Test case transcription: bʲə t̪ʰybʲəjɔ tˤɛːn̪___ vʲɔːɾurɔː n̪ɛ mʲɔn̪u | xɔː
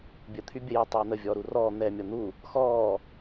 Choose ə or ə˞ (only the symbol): ə